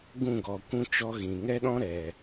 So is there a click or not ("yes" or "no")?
no